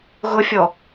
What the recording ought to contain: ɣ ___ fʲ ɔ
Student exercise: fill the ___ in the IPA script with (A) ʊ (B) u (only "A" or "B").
A